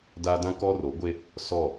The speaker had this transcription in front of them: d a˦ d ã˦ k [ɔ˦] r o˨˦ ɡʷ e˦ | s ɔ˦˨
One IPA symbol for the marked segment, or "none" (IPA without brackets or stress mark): ɔ˦